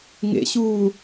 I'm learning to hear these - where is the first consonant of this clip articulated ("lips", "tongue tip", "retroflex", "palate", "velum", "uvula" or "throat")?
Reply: velum